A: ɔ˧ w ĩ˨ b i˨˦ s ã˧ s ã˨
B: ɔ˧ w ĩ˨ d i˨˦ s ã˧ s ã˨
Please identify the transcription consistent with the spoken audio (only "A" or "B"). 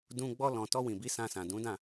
A